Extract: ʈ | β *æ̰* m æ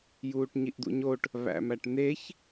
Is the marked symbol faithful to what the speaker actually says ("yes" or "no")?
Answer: yes